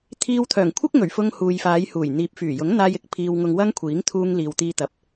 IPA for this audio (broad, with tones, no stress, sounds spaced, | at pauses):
t̪ʰ iː˧ w t̪ʰ œː˨˩ ŋ kʷʰ ɪ˥ k̚ ŋ ɵ˨˩ ɥ f ʊ˧ ŋ h uː˨ j f aː˨˧ j h uː˨˩ j n̪ iː˨ p̚ f yː˨˩ j ʊ˨˥ ŋ n̪ aː˧ j ɪ˨˥ k̚ pʰ iː˧ w ŋ ʊ˧ ŋ w ɐ˥ ŋ kʷʰ iː˨˥ ŋ t̪ʰ uː˧ ŋ l iː˨ w t̪ iː˧ t̪ ɐ˨ p̚